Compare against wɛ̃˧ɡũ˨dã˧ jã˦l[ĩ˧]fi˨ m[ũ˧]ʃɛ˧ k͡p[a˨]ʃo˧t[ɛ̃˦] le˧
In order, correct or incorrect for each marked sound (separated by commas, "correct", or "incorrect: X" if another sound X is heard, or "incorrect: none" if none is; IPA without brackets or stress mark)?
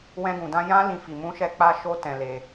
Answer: correct, correct, incorrect: a˧, incorrect: ɛ̃˨